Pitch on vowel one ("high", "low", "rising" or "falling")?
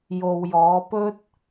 low